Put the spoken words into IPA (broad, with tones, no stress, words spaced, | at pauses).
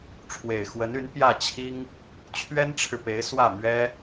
ʈ͡ʂʰwe˨˩ɪ̯xwə˧˥ny˧˥n pjä˥˩t͡ɕʰi˥ŋ | t͡ɕʰɥɛ˥nʈ͡ʂʰɻ̩˨pe˧˥ɪ̯ swä˥˩mɥɛ˥